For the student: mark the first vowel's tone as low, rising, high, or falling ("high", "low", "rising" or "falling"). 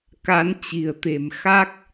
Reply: rising